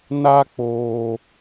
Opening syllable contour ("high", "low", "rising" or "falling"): high